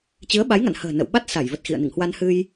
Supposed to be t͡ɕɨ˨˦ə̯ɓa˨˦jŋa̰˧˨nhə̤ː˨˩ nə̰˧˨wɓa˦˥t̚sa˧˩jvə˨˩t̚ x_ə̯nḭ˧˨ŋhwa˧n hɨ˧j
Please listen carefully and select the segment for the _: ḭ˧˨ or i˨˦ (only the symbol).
ḭ˧˨